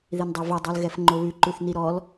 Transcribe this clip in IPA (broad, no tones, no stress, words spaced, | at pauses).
ðindˤɛvo dˤolɣɛfŋ͡ǃoβʉ ǃʉθniɾɔl